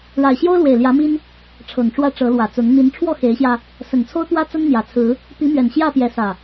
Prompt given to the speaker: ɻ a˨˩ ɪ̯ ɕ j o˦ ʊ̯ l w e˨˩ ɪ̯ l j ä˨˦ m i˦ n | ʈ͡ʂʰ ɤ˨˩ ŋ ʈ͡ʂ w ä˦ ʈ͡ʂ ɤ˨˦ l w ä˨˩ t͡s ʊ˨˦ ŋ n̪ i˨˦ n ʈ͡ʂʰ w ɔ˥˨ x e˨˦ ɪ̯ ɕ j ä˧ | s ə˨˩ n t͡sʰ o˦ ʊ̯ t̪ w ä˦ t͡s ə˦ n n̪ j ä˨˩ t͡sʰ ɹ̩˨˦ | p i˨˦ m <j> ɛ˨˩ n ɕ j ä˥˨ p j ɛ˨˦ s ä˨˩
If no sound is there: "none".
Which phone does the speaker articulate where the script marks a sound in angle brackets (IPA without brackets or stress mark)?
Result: ɥ